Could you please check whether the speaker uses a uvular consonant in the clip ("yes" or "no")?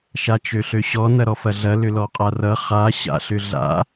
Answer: yes